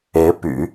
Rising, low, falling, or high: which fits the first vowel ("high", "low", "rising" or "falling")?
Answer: rising